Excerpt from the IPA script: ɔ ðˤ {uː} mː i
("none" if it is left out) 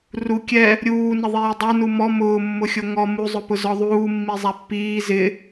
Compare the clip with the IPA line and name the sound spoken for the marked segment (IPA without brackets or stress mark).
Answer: uː